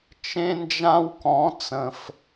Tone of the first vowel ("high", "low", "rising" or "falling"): high